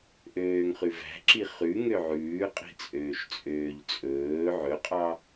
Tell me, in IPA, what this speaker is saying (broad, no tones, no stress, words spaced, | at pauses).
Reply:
ʔøːŋχʉvæ̤ǁi χʉ ŋøʕʉː qʼi̤t͡sʼøːʃt͡sʼøːʎt͡sʼɵː ʕɵqʼɑ